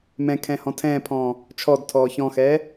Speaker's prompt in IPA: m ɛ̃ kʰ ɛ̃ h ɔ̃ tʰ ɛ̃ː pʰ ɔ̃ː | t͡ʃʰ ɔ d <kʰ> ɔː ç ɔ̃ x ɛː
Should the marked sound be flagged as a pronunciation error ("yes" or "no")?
yes